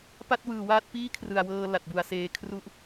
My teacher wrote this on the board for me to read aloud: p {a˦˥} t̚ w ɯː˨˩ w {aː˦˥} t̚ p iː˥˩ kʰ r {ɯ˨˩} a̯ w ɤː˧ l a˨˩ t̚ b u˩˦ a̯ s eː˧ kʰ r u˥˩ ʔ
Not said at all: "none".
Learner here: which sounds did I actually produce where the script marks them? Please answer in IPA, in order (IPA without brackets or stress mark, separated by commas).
a˥˩, aː˦˥, ɯ˨˩